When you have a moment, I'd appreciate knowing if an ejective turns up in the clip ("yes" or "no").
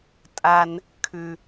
yes